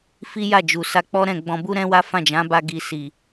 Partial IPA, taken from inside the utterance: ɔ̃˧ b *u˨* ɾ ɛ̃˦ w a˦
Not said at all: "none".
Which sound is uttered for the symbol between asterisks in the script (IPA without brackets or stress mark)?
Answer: u˦